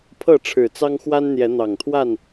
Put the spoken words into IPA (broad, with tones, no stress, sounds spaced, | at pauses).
pʰ ɤ˥˨ ʈ͡ʂʰ ɻ̩˨˩ t͡s ɑ˦ ŋ x w a˦ n n̪ j ɛ˨˦ n̪ ɑ˨˩ ŋ t̪ʰ w a˥˨ n